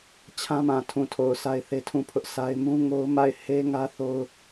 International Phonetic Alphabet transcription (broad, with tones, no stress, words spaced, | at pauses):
t͡ɕʰã˦mã˨tʰũ˨tʰo˨ʊ̯ sʰa˦ɪ̯θe˦tʰũ˦˨pʰʊ˦ʔ sa˦ɪ̯ mũ˦ ŋo˦ʊ̯ ma˦˨ɪ̯he˦ŋä˦θo˦ʊ̯